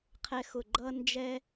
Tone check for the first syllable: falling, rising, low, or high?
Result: high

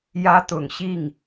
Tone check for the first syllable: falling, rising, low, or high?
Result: high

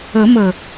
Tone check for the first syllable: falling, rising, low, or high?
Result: rising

